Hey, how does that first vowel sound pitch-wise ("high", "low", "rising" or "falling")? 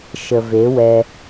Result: low